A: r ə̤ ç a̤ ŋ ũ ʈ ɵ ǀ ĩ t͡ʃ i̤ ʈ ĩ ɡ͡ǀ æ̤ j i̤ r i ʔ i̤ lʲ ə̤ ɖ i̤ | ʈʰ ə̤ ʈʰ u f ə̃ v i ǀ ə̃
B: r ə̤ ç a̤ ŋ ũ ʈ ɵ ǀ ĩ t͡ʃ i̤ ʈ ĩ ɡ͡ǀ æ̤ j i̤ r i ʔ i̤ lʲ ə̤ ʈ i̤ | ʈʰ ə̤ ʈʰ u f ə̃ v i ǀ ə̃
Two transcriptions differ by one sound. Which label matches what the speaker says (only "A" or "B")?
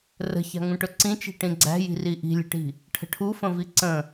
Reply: B